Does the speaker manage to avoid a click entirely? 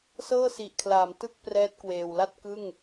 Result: yes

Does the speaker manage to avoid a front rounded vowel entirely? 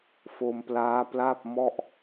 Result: yes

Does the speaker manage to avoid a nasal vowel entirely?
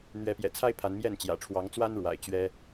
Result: yes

